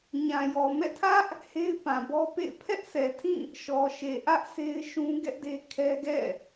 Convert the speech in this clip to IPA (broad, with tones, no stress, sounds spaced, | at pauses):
ɲ ã˨ j ɔ˨ m ɛ̰˦˨ tʰ ä˦ ʔ | h e˦ ɪ̯ p ã˨ b ɔ˦ p ḛ˦˨ ɪ̯ pʰ ɛ˦ ʔ sʰ ɛ˨ tʰ ĩ˦˨ | ʃ ɔ˨ ʃ e˨ ʔ ä˦ ʔ s e˦ ɪ̯ ʃ ũ˦ ɡ ɛ˦ ʔ d e˦ kʰ ɛ˦ ɡ ɛ̰˦˨